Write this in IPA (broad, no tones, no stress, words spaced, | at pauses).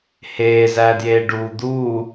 heː zæːdjeːɖuː d̪uː